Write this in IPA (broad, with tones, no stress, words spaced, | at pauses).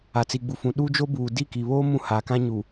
a˨t͡si˨ɡ͡bu˨ fũ˨ ɗu˦d͡ʒo˦buː˨ di˦˨ki˨βoː˦ mũ˦ haː˨kã˦ɲu˨